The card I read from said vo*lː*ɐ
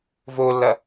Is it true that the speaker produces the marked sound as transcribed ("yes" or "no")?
yes